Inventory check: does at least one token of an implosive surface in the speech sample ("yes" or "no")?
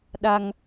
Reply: yes